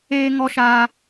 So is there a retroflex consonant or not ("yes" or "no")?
no